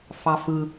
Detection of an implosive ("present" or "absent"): absent